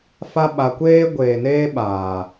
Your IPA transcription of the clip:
f a˦ ɓ a˧ kʷ eː˦ ɡʷ eː˨ n eː˦ ɓ aː˨

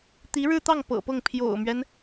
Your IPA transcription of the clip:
t̪ i˧˥ ɻ ɻ̩˥˧ t̪ ɑ˥˩ ŋ p ɤ̰˨˩ p ɤ˥˩ ŋ pʰ j o̰˨˩ ʊ̯ m ɥ ɛ˦ n

